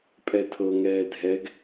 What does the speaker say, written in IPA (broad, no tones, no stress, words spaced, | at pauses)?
pʼɛtʰɤŋɛː dʱɛɡ